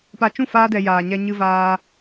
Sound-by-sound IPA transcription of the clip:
p a˧ t͡ʃ ũ˦˨ f aː˦ d ɛ˧ j aː˨ ɲ ɛ˧ ɲ ɨ˧ v aː˧

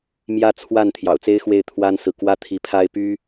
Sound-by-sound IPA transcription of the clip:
m j ä˥˧ t͡sʰ w a˥˩ n t̪ʰ j ɑ̰˨˩ ʊ̯ t͡s e˥ ɪ̯ x w e˥˩ ɪ̯ t̪ʰ w a˥ n s ɹ̩˨ k w ä˥ t̪ʰ i˧˥ pʰ a˥ ɪ̯ p y˥

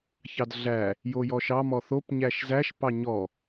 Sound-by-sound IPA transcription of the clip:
ç ɑ d ɮ æ | j o j ɔ ʃ ɑ m ɔ θ o p ɲ æ ʃ z æ ʃ p ɑ ɲ ɔ

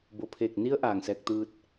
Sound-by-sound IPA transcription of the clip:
b o˧˩ pʰ eː˧˩ k̚ n i˧˥ ə̯ ʔ aː˧˩ ŋ s ɛː˧ k̚ t̪ ɯː˧ t̚

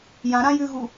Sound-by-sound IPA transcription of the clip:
j ã ɾ ã j ʉ ɣ u

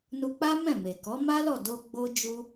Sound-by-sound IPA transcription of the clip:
n u˧ k͡p a˦ m ɛ̃˦˨ m e˨ k ɔ˨˦ m a˦ l ɔ˦˨ d o˧ ɡ͡b o˦ d͡ʒ u˦

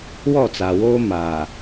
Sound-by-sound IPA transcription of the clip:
w ɔ˦˨ t͡s a˨ w oː˦ m aː˨

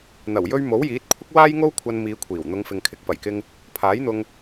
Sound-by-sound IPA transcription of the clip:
n̪ ɐ˨˩ w j ɵ˧ ɥ m o˨˥ w j iː˨˥ t̚ kʷʰ ɪ˥ k̚ w aː˥ j ŋ o˥ w kʷʰ ɐ˧ n m iː˨˧ kʷʰ iː˨˩ w n̪ ʊ˨˧ ŋ f ɪ˨ ŋ kʰ ɪ˨ k̚ p ɐ˨˩ j k ɪ˧ ŋ | pʰ aː˨˥ j n̪ ʊ˧ ŋ

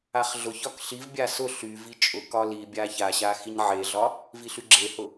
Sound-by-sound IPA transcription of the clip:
a χ ɮ ʊ ç ɒ k ɬ i v bʲ a s ʊ ɬ y v i t͡ʃʼ ʊ k ɒ l i bʲ a ç a ɕ a x i ɲ ʕ e ɮ ɒ | v i ɬ y ɡ͡ǁ e h ʊ

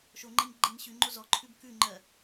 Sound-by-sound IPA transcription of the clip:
ʃ o ŋ͡ǃ ɛ ɲ ɡ͡ǃ e ɲ ɕ ʉ ŋ͡ǃ o z ɔ ǃʰ ʉ b k ʉ ŋ͡ǃ ɜ

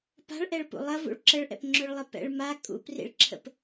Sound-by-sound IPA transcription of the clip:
p a̤ ɭ ʔ ɛ ɭ p ṵ lˠ ɐ v ṵ ɭ ǁ ə ɭ ʔ ɛ̰ p ŋ͡ǁ ø ɭ lˠ ɛ p ɛ̰ ɭ m a kʼ ṵ p r ḭ ɭ ǁʰ ə̰ p

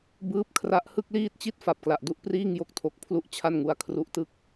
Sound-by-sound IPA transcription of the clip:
b ɯː˦˥ p̚ kʰ r a˦˥ ʔ h ɯ˥˩ k̚ l iː˥˩ t̚ t͡ɕ i˥˩ t̚ f a˨˩ p̚ k l a˨˩ ʔ d u˥˩ ʔ p r iː˥˩ ŋ j o˦˥ k̚ tʰ o˨˩ k̚ pʰ l u˥˩ ʔ t͡ɕʰ a˥˩ n ŋ u˦˥ a̯ kʰ r u˦˥ ʔ t ɯ˥˩ k̚

